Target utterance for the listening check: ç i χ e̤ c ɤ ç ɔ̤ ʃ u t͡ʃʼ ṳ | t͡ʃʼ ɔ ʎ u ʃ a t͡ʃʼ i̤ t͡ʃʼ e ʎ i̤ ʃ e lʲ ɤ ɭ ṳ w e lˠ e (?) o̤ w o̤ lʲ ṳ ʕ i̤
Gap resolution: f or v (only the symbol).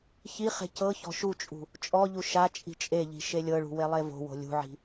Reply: v